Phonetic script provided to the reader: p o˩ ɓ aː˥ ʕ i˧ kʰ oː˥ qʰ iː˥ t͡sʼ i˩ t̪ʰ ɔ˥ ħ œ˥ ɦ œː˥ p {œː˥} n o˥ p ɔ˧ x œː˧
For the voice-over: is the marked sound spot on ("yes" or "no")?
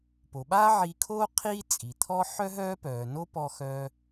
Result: no